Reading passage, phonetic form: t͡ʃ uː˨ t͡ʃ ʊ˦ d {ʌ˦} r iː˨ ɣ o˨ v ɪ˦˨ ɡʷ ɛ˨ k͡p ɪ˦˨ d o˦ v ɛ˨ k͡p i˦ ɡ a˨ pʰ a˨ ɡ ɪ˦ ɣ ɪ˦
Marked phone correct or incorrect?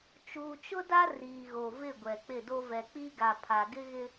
incorrect